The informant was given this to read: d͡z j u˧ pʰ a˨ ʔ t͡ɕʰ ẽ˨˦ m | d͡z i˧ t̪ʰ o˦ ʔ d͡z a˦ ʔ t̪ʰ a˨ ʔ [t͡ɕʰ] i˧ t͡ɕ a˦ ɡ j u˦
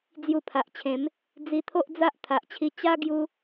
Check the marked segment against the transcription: correct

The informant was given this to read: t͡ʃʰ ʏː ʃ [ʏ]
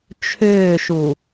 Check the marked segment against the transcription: incorrect: u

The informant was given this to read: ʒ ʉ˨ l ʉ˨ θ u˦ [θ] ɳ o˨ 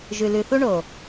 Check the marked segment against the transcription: incorrect: none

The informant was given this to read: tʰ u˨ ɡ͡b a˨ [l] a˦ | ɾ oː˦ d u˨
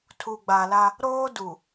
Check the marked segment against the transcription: correct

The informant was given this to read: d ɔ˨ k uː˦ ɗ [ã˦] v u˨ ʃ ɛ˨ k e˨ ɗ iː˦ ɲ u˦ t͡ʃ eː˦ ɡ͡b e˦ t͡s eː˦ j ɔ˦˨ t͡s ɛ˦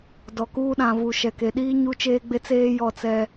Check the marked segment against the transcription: incorrect: ã˨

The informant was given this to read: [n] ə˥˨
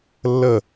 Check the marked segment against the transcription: incorrect: lː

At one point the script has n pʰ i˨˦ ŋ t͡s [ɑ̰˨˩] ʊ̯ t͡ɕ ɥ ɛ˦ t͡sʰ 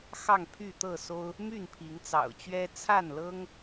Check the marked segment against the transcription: correct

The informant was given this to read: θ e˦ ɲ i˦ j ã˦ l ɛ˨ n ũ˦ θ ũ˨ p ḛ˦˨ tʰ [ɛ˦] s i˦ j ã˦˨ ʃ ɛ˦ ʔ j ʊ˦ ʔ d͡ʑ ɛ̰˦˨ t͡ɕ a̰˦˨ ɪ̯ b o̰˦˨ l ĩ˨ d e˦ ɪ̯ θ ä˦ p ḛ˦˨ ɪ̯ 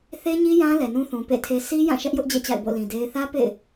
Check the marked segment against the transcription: incorrect: e˦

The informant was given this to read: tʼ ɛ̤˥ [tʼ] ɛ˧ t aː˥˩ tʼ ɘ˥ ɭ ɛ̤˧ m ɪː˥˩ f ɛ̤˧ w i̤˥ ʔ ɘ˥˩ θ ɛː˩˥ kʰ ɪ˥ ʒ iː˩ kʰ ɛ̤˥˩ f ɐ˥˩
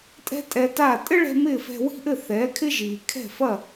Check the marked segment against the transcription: correct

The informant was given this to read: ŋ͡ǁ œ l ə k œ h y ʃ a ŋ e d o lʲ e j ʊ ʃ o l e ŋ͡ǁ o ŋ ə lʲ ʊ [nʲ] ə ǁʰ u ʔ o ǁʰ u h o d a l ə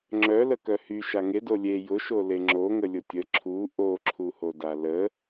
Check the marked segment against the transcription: incorrect: tʲ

